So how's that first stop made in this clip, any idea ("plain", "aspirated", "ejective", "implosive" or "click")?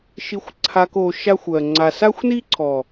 click